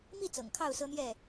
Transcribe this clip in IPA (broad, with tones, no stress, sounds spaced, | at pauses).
m i˥˨ t͡s ɤ̰˨˩ ŋ kʰ ɑ˥˨ ʊ̯ s ɤ˦ n̪ j ɛ˥˨